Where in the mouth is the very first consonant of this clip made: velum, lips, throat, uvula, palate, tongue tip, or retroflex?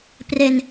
lips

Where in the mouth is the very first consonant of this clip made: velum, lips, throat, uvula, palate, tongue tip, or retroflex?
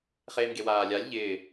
uvula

